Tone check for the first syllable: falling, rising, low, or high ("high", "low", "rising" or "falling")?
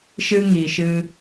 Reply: high